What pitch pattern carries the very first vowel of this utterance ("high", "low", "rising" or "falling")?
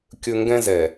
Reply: low